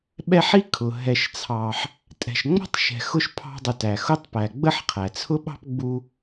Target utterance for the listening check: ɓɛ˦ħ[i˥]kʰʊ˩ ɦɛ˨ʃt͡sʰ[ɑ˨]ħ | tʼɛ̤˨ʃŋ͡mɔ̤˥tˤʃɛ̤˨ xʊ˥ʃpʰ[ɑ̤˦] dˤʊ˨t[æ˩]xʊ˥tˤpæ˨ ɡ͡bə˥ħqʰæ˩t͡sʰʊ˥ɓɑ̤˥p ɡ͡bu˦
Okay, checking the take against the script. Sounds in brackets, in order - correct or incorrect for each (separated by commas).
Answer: correct, correct, correct, correct